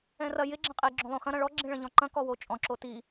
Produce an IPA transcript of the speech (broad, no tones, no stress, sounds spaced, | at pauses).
ɛ̃ r ɐ j ɪ ɡ͡ǁ ɐ̃ qʼ i ɡ͡ǁ õ lˠ õ x ɐ̃ ɾ ɐ̃ ɭ ɔ ɡ͡ǁ ĩ ɭ ɐ̃ ʎ ɔ̃ ǃ ɐ̃ k ɔ w o t͡ʃʼ ɔ̃ ǁ o t i